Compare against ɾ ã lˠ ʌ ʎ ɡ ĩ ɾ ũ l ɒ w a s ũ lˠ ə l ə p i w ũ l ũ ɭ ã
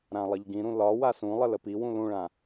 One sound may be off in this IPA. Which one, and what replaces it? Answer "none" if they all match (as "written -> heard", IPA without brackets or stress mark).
none